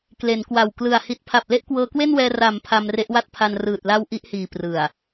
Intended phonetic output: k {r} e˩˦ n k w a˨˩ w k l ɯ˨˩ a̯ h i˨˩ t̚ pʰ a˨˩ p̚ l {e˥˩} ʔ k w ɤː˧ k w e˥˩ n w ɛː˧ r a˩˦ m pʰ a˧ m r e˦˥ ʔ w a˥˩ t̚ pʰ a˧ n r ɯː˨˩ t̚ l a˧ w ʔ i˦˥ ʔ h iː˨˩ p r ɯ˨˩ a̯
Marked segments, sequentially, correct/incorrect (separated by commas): incorrect, correct